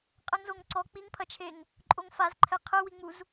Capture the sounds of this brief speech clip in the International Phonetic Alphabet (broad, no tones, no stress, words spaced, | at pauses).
qʼɛŋzoŋǀɔ k͡piŋpʰɐt͡ʃʰeŋ | ǃʼoŋfazǃʰɛ qʰɘwiŋ͡muz